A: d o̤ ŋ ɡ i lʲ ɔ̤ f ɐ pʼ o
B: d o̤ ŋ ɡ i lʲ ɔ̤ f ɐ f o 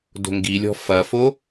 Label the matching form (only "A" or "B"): B